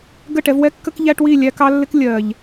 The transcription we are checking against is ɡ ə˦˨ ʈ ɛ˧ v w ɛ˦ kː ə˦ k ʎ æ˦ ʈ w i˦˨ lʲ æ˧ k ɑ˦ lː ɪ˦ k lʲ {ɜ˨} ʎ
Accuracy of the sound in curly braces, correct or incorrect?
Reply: correct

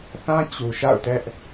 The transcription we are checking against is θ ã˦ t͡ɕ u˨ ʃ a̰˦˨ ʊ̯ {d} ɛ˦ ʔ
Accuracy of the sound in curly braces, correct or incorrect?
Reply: incorrect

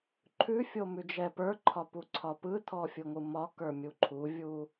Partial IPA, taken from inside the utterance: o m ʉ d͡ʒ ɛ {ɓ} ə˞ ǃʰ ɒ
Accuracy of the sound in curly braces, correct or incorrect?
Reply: incorrect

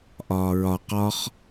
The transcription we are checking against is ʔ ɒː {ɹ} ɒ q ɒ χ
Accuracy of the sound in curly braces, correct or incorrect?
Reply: correct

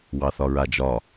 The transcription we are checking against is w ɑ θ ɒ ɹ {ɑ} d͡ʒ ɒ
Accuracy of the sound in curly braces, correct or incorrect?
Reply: incorrect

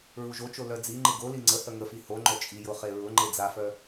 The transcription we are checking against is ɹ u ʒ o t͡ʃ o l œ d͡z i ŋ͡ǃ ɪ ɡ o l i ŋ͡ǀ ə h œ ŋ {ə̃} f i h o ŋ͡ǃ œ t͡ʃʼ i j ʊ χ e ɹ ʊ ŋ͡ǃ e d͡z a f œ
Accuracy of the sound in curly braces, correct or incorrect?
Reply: incorrect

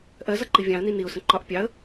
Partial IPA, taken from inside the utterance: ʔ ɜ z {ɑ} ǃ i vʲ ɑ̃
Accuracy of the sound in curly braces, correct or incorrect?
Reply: incorrect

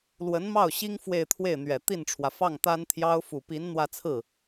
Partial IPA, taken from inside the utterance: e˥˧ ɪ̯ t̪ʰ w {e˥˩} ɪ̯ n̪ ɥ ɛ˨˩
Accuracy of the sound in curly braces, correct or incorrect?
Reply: correct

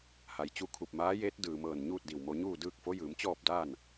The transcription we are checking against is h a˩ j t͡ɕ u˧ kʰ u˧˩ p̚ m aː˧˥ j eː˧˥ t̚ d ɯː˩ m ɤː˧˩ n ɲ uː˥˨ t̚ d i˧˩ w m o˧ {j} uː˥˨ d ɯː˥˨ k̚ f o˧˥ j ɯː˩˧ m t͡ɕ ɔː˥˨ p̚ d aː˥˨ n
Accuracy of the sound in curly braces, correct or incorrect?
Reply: incorrect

